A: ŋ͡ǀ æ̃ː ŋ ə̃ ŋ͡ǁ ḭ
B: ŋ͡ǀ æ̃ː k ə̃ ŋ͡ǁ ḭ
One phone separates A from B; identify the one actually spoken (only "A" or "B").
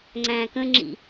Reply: B